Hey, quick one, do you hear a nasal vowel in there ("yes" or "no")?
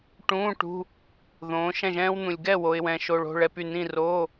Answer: yes